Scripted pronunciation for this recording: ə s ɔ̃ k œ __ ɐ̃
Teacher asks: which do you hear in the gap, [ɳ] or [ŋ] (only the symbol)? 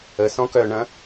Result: ɳ